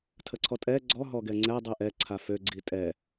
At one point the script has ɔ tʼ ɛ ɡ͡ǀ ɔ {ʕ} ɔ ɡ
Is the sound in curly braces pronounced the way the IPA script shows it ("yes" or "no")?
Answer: no